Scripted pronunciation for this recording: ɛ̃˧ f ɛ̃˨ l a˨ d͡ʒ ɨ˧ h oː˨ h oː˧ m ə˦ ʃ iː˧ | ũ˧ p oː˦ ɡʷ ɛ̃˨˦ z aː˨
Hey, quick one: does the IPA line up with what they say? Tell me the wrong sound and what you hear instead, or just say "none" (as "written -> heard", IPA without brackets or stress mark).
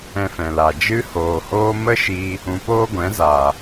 none